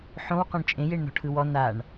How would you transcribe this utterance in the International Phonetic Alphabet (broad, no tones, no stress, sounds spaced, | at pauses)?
ħ õ w q ɔ̃ ɳ t͡ʃʼ ẽ j e ɳ n ɔ̤ ʈʰ ɯ w ɔ n a ɳ